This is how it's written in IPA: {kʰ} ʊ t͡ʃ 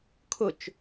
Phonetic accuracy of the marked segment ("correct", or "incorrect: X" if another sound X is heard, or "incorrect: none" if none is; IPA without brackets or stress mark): correct